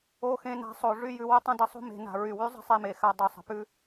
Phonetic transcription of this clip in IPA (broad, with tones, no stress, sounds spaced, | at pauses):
o˧ x ẽ˧ n a̤˧ sˤ o˨ ʐ y˧ j ʉ˨ w ə˦ tˤ ɐ̃˦ d ə˦ sˤ o̤˦ m e̤˨ n a̤˨ ɹ y˨ w y˦ zˤ ə̤˦ sˤ e˧ m e˨ x a˧ dˤ o˨ sˤ ə̤˨ p ʉ˦